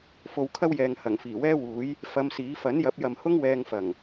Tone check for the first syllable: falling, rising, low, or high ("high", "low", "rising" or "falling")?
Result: low